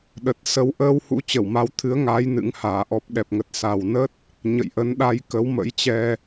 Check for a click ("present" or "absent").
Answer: absent